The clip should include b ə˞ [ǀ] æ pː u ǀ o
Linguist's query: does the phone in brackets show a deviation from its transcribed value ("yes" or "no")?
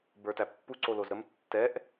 yes